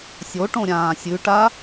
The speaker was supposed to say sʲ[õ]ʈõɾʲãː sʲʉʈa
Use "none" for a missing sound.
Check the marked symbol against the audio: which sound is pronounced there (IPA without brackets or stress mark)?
o